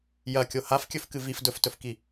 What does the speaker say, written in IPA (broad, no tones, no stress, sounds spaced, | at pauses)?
j ɐ kʲ o h a f kʲ ɵ f k ɨ v i f d ɵ f t ɵ f k i